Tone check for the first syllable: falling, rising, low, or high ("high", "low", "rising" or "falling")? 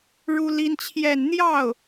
high